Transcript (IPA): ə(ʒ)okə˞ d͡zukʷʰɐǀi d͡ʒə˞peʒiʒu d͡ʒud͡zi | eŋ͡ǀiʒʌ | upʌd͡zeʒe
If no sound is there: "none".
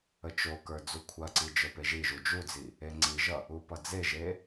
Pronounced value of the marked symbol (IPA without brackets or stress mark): t͡ʃ